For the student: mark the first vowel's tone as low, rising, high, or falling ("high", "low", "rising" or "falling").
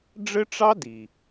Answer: high